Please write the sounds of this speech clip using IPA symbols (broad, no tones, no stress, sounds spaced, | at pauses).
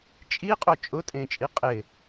t͡ʃʼ i qʼ o t͡ʃʼ ʊ tʼ ẽ t͡ʃʼ i qʼ ɪ